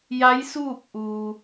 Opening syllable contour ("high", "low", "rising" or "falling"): rising